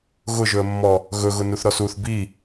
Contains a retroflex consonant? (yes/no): no